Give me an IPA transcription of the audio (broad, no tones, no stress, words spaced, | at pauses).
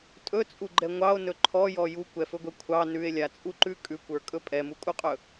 tʼɵt͡sʼuɡ͡ǃɛ ŋʷɑo̯nɵ ǃʰɔjɔ jukʷɛfɵɡʷɛ kʷʰɑ nʉe̯lʲat͡sʼuǃʉ kʼʉkʷə˞kʼɵ pʼɛmukʼuqʼɵ